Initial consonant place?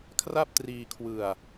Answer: velar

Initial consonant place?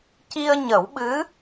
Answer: palatal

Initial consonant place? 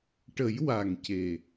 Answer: retroflex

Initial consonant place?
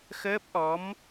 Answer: velar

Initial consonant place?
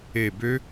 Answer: labial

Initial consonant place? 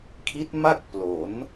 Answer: velar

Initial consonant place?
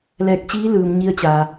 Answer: alveolar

